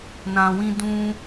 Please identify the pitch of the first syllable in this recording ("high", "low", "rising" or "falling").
low